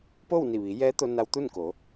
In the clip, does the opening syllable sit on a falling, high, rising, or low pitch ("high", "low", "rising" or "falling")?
falling